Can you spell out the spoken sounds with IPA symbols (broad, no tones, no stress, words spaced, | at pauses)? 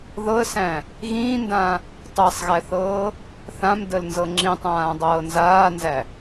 ðɤə̯sæ̃ | ɣĩːndã | tˤæsˤɣæθɤː | θãmdəlnzɤ ŋ͡ǁĩtˤãːdˤɤː nzaːnzæ